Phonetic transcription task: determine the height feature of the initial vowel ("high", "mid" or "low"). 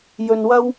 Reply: mid